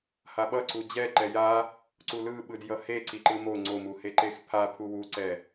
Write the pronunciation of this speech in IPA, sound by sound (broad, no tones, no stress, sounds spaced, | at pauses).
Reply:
h a ɓ ʌ ǀ u d͡ʑ ɛ ǃ ɛ j a | ǀ u l ɯ ɓ ɯ d j ʌ h e ǀ i ǃ ɯ m o ŋ͡ǀ o m u h e ǃ e x pʰ a pʰ u w u ǀ ɛ